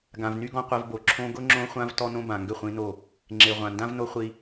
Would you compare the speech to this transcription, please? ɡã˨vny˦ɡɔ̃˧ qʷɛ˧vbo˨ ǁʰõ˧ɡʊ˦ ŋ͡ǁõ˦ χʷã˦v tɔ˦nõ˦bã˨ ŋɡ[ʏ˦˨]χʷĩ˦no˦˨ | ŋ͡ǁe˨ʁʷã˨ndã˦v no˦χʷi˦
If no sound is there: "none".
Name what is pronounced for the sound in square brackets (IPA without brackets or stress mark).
ʏ˦˨